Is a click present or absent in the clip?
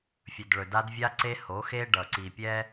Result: present